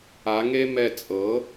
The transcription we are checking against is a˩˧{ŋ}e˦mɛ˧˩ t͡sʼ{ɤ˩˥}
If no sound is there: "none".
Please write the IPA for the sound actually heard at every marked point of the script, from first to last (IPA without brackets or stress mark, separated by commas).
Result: ŋ, ɤ˩˥